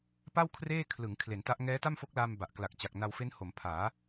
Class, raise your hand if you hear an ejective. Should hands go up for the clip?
no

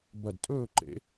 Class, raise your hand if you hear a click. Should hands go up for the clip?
yes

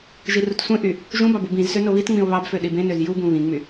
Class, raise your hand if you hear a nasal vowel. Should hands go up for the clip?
yes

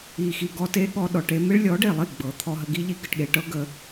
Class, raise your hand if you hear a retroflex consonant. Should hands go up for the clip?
yes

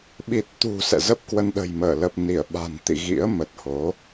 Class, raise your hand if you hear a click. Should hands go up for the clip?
no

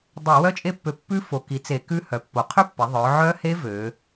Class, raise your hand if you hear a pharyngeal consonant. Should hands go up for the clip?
yes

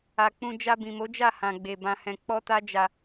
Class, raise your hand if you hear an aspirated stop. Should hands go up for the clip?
no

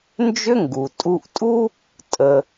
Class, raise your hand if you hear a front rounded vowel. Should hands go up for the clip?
yes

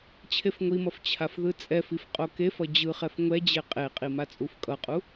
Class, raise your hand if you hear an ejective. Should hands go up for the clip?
yes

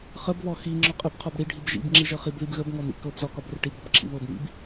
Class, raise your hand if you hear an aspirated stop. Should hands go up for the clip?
yes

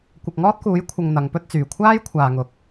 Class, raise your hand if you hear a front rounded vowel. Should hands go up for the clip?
yes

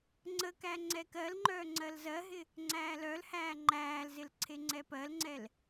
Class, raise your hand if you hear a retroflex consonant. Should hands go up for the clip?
no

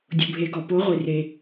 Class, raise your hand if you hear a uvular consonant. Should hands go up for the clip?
yes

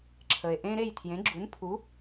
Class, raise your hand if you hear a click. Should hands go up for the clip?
yes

